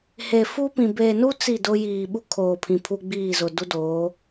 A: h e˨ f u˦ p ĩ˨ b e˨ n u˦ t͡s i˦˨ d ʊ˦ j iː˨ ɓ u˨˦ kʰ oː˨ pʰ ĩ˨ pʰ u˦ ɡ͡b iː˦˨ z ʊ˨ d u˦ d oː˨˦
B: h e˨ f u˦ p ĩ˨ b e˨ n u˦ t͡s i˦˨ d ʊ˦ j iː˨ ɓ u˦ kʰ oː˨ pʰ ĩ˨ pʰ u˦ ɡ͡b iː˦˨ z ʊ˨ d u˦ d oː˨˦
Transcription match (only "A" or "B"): B